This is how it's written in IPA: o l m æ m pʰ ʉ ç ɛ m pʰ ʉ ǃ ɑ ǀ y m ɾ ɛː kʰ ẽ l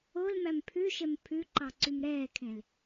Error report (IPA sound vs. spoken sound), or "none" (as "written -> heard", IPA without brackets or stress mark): ç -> ʃ